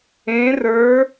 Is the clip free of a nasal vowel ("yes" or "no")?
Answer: no